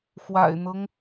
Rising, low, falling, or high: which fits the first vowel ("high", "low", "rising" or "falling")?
low